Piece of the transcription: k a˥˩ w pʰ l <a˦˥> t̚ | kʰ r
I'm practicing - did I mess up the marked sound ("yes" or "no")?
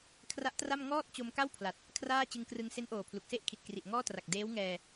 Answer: yes